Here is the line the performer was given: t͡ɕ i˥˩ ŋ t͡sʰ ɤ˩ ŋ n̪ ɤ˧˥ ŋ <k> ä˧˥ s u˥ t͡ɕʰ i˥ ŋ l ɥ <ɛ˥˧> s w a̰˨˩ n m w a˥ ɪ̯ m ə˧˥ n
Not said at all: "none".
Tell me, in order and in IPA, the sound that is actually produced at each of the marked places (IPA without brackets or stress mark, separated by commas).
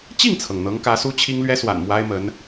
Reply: k, ɛ˥